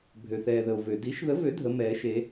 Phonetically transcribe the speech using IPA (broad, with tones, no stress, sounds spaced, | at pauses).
bʱ ø˩ θ ɛː˩ ð ə˩ o̯ v ø˩ d i˨˩˦ ʃ ð ə˨˩˦ v ø˨˩˦ dʱ ə˨˩˦ m ɛː˨˩˦ ʃ e˨˩˦